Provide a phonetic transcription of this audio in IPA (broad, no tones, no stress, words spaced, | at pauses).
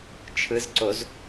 t͡ʃʰɯzǀoz